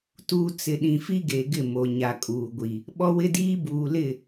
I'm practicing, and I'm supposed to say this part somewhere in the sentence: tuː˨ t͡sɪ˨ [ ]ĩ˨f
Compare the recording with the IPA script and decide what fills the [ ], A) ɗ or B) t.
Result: A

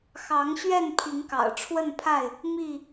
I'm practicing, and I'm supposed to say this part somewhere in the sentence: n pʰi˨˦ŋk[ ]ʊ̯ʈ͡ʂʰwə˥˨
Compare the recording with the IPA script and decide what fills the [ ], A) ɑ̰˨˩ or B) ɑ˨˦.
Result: A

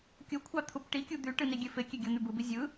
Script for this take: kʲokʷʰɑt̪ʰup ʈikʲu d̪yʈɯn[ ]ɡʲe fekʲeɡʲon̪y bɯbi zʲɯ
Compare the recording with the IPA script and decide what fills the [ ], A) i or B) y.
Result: A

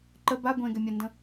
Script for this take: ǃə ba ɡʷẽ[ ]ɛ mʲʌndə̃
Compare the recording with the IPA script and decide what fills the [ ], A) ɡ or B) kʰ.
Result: A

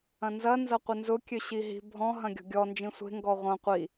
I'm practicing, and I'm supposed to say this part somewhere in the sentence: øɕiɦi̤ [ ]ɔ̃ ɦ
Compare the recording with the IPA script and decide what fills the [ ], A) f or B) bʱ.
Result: B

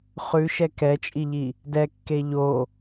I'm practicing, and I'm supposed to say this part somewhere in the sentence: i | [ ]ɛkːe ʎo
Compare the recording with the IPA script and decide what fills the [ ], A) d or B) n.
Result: A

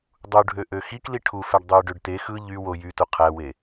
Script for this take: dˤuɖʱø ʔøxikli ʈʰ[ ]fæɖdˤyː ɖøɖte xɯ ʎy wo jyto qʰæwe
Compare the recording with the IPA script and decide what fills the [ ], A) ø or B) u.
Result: B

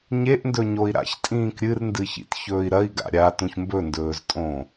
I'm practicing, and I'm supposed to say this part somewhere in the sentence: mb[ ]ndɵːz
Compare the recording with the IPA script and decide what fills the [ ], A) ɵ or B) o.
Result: A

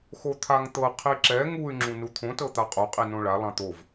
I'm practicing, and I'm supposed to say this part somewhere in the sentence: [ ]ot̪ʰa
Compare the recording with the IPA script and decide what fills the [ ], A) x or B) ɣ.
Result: A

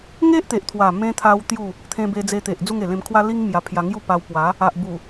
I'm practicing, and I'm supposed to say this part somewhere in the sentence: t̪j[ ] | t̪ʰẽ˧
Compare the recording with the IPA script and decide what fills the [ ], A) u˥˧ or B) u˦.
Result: A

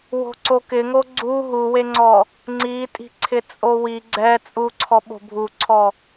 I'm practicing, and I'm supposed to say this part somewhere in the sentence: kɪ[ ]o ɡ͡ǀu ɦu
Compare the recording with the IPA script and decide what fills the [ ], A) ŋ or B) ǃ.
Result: A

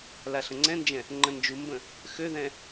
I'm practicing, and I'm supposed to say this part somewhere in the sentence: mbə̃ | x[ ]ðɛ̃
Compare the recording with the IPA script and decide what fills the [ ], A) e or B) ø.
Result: B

